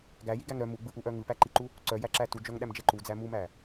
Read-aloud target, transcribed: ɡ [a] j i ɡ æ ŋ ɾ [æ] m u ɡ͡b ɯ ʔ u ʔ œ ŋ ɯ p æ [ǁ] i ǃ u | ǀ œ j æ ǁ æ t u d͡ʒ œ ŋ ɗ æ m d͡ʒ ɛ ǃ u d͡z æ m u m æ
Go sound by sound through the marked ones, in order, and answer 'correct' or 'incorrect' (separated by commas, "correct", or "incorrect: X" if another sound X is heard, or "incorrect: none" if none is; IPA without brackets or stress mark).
incorrect: æ, incorrect: œ, incorrect: ǃ